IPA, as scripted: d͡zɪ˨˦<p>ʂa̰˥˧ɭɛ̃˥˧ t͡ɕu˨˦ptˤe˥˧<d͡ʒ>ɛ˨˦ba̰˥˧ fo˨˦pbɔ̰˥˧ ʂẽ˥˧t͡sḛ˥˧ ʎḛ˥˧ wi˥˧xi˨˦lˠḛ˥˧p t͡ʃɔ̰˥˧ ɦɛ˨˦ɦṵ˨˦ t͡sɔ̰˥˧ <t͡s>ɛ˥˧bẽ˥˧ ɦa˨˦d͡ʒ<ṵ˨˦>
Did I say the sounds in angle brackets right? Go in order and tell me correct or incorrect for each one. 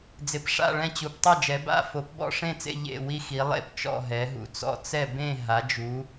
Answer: correct, correct, correct, incorrect: u˨˦

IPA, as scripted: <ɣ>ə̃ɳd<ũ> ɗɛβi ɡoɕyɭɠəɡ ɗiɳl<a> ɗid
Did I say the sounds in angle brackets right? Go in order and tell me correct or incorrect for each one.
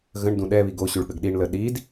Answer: correct, correct, incorrect: ə

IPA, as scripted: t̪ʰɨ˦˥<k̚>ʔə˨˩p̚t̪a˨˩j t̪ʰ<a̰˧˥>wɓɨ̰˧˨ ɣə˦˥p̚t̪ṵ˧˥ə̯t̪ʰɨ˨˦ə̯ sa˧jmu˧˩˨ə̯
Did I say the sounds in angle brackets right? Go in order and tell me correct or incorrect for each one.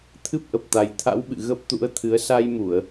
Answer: incorrect: p̚, correct

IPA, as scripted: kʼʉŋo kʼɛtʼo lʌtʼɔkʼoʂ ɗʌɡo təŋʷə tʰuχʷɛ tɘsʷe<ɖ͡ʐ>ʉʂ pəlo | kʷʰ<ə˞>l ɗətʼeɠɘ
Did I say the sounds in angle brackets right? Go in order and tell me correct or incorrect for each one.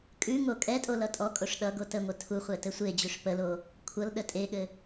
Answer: incorrect: d͡ʑ, incorrect: ʌ

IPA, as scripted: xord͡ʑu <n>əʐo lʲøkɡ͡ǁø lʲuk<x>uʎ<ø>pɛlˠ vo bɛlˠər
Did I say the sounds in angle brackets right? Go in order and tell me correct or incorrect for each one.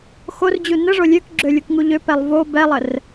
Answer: correct, incorrect: ŋ, correct

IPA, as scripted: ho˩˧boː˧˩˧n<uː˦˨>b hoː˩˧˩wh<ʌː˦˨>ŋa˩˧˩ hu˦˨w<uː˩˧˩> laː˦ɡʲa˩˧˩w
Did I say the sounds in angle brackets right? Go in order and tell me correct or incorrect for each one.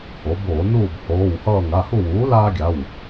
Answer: correct, correct, incorrect: uː˩˥

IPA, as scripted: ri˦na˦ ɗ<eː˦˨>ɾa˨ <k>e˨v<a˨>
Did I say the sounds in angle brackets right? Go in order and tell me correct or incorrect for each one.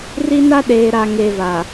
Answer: incorrect: eː˨, incorrect: ŋ, correct

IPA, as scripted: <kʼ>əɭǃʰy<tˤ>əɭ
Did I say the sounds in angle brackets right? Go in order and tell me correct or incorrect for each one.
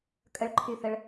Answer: correct, incorrect: θ

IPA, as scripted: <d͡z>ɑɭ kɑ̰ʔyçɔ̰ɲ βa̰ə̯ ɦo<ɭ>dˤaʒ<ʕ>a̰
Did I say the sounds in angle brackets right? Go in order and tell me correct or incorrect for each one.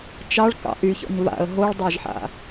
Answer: incorrect: t͡ʃ, correct, incorrect: ħ

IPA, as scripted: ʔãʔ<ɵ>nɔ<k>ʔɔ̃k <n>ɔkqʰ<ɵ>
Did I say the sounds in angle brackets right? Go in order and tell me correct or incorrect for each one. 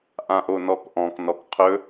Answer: incorrect: o, correct, correct, correct

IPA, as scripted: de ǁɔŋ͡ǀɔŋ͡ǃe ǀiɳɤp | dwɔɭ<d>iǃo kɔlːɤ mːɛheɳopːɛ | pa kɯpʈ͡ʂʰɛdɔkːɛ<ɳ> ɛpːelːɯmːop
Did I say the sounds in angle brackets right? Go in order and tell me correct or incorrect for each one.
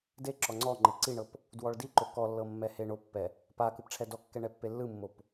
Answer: correct, correct

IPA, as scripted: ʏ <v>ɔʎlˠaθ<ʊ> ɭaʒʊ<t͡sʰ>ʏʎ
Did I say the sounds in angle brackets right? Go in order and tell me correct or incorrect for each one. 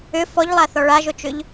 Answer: incorrect: f, incorrect: ɔ, incorrect: t͡ʃ

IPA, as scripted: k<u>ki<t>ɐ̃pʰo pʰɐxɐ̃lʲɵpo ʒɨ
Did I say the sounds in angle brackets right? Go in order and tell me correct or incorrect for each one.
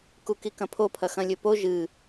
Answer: correct, incorrect: k

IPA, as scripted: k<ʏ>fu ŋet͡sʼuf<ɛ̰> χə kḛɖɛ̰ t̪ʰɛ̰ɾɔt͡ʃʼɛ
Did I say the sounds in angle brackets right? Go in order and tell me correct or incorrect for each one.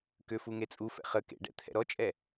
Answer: correct, correct

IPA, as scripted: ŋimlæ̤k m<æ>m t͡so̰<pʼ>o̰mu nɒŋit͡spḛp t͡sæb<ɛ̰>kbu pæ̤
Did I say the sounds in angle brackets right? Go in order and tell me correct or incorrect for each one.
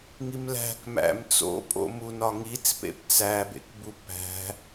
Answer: incorrect: æ̰, correct, incorrect: ḛ

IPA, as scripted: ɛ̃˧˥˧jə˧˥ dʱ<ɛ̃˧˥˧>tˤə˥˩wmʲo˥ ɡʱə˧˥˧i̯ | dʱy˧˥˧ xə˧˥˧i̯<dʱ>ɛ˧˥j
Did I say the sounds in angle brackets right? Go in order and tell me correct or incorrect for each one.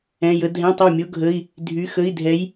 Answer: correct, correct

